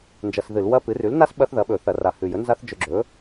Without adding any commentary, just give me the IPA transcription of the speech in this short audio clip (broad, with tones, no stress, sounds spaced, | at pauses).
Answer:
n d͡ʒ ɐ˧ s ð ɨ˧˩˧ l w ɐ˦˥ p ɨ˩˥ r ʉ˩˥ l n a˦˥ s ɓ ɐ˦˥ θ ð ɐ˩˥ ɓ ɵ˧˩˧ θ ɐ˧˩˧ r a˨˩ h ʉ˨˩ j ɵ˩˥ n z a˦˥ θ d͡ʒ ɵ˧ ɡ͡ǁ ɵ˩˥